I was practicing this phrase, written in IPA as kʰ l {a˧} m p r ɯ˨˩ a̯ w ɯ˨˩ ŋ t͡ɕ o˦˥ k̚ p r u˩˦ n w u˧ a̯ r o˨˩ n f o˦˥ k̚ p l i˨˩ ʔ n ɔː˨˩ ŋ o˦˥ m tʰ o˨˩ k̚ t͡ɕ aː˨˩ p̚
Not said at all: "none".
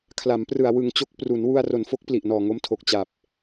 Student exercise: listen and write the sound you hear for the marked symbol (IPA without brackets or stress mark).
a˩˦